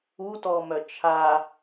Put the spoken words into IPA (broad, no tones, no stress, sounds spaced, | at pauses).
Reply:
u t ɔ m œ t͡ʃʰ a